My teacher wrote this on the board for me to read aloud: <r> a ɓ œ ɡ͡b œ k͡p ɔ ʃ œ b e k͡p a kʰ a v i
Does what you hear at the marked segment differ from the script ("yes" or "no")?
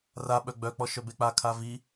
no